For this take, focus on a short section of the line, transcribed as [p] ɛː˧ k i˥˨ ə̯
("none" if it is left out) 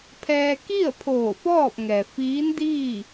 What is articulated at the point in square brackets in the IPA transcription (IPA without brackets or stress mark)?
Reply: pʰ